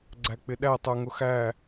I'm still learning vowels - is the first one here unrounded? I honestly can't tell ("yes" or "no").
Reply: yes